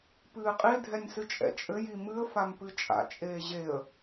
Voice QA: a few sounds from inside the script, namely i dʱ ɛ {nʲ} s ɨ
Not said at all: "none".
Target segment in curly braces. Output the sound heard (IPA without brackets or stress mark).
nʲ